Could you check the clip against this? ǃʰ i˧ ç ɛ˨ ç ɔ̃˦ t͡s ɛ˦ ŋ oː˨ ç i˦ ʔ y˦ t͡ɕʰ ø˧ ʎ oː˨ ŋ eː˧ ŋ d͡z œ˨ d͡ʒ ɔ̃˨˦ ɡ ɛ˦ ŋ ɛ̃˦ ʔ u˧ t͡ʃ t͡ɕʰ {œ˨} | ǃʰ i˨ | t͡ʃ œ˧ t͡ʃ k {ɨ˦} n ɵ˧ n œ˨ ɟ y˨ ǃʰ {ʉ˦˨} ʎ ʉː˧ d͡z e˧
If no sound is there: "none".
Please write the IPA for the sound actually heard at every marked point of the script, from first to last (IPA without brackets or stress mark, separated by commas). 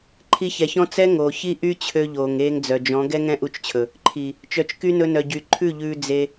ɵ˨, y˦, ʉ˦˨